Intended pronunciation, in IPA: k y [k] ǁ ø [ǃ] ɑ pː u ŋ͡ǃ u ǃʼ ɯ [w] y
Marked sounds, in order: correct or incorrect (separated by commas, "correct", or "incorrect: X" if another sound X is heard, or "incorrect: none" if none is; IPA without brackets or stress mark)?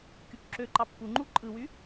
correct, correct, correct